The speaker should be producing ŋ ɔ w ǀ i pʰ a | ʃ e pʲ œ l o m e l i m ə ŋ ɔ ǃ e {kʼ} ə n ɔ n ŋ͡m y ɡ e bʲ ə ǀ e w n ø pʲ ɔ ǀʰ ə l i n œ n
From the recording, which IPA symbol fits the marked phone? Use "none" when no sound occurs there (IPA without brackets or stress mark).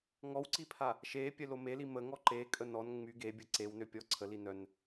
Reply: kʼ